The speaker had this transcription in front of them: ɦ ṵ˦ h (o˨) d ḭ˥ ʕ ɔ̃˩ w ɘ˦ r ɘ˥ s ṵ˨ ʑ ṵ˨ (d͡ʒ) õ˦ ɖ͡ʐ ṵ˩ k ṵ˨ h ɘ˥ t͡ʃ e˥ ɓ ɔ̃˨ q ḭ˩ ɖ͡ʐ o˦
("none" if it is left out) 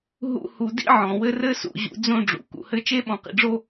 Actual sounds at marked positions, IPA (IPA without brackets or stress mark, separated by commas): u˨, d͡z